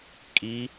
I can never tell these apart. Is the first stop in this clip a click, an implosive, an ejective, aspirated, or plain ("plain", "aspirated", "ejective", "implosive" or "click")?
ejective